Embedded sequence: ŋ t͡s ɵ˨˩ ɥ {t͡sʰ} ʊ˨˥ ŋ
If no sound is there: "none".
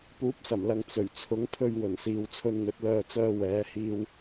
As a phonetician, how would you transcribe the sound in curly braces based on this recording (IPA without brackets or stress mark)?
t͡sʰ